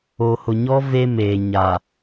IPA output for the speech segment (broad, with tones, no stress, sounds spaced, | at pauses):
o˨ h ʊ˨ ɲ ɔ˦ v e˦ m eː˨ ɲ a˨